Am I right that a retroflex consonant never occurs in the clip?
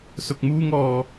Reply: yes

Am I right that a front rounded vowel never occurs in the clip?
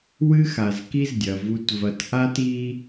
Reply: yes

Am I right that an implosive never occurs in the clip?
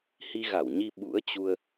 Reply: no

